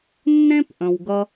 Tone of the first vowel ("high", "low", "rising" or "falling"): high